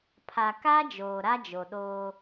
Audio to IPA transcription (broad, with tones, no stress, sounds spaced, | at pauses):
pʰ a˨ k a˦ d͡ʒ oː˨ ɾ a˦ d͡ʒ o˨ ɗ oː˦